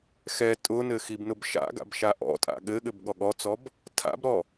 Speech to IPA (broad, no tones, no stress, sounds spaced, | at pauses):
x ɛ tʼ ʊ n ɘ x i b n ʊ b ʃ a̰ ɡ a̰ b ʃ a ʔ ɔ̰ tʼ a̰ ɠ ɘ ɠ ɘ b ɠ ɔ ɠ ɔ t͡s ɔ b | tʰ a̰ b ɾ ɔ